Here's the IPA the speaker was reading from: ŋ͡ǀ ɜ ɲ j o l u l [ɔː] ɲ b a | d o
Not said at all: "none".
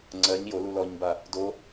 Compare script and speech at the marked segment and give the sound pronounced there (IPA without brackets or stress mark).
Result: ɔ